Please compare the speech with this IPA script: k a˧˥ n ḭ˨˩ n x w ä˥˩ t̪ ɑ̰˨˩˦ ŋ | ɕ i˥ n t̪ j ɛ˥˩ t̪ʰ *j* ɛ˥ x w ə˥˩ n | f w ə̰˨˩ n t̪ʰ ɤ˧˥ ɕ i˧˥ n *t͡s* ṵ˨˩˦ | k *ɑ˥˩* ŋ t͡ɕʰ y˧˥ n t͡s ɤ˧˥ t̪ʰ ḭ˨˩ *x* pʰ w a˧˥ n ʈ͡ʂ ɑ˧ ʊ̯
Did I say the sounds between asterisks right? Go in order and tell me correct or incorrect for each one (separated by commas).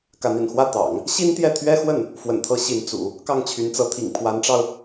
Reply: incorrect, correct, correct, incorrect